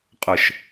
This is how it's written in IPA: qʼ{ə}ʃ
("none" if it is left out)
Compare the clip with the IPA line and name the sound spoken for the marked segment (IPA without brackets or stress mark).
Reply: ə